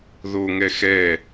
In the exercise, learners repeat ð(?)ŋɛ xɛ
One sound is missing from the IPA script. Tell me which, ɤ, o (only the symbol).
o